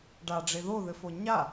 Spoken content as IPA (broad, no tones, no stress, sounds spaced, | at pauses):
ɖ a ɖ͡ʐ e ð o ð ɘ f o ɲ a